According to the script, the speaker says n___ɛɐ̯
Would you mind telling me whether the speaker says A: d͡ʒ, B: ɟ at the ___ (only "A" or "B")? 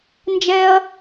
A